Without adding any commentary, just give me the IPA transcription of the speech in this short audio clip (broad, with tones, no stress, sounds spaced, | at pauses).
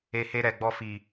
e˧ h e˧ ɾ ɛ˨ ɡ͡b ɔ˧ f i˨